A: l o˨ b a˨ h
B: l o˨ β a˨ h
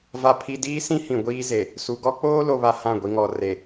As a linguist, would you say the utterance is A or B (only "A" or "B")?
B